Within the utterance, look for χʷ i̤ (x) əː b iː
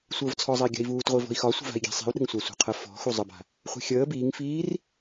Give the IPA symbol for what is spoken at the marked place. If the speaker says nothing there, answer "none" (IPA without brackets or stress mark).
xʲ